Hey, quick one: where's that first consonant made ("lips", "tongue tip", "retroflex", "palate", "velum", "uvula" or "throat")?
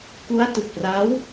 velum